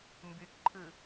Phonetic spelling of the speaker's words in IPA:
m b y k ǃʰ ɨ

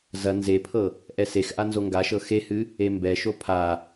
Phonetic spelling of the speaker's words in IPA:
z ɐ n z e pʰ ɤ | ʔ ɛ s e x ʔ a n z o ŋ ɡ a ʃ ɤ x e h ɨ | e m b ɛ ʃ o pʰ a

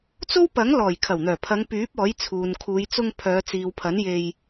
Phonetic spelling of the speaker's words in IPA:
t͡s o˥ w p ɐ˨˥ ŋ l ɔː˨˩ j kʰ ɐ˨˩ w n̪ œː˨˩ pʰ ɐ˨˧ ŋ p yː˨˥ p̚ ɔː˨˥ j t͡sʰ uː˨ n kʰ uː˨˧ j t͡s ʊ˧ ŋ pʰ œː˨˧ t͡s iː˨ w pʰ ɐ˨˥ n j e˧ j

